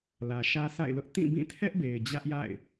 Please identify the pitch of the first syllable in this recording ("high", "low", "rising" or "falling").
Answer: low